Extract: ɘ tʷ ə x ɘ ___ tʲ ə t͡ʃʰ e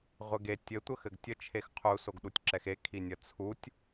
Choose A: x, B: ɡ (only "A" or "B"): B